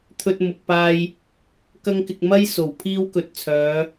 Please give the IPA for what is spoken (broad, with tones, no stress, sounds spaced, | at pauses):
t̪ʰ ɵ˧ t̚ m ʊ˨ k̚ p aː˧ j | k ɐ˥ ŋ k ɪ˧ k̚ m ɐ˥ j s o˨˩ w pʰ iː˥ w k ɵ˧ t̚ t͡sʰ œː˨˧